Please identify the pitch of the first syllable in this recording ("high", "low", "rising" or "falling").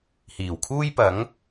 low